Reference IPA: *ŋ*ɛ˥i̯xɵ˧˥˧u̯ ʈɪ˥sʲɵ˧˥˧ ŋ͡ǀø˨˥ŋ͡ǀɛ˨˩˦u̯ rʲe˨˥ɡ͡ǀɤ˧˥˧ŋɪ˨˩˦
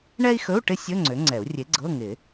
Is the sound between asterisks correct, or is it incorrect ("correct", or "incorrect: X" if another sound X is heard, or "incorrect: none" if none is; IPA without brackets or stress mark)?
incorrect: ɳ